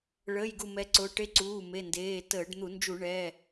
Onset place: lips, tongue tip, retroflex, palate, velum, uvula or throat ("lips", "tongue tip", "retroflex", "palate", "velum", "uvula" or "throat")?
retroflex